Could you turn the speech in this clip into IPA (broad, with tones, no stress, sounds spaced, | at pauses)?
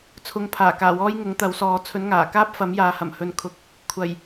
t͡sʰ ʊ˨ ŋ pʰ aː˨˩ k aː˨˩ w ɔː˧ j ŋ ʊ˨˥ ŋ t̪ ɐ˨˥ w s ɔː˨˧ t͡sʰ ɵ˨˥ n ŋ aː˨˩ k aː˥ p̚ f ɐ˨˥ m j aː˨˧ h ɐ˨˩ m h ɵ˨ n kʰ ʊ˨˥ k̚ | kʷʰ ɐ˨˩ j